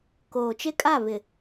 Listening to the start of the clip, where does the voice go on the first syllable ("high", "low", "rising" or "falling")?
low